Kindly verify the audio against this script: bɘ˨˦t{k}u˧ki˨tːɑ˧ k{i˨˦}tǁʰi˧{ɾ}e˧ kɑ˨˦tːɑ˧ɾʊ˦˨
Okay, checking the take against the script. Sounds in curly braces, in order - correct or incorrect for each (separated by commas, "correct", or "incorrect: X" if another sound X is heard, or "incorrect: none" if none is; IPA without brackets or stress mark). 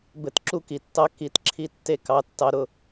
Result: incorrect: ǁ, correct, incorrect: tː